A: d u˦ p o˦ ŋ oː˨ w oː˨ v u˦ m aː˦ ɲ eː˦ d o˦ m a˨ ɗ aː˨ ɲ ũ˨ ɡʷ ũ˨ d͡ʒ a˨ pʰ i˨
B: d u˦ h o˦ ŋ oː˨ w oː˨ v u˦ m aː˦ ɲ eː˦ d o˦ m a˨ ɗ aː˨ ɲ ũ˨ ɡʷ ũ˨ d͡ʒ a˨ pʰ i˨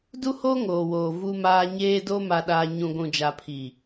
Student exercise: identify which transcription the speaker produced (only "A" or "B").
B